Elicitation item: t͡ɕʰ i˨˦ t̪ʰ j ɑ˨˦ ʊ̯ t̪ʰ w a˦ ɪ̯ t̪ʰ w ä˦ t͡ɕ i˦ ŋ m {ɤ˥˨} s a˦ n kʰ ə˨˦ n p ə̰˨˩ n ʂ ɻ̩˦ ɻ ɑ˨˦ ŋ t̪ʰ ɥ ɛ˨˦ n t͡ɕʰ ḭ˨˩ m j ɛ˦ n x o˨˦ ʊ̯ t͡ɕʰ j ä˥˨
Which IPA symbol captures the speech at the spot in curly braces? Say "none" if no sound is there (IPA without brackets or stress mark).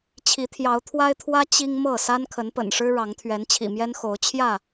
ɤ˥˨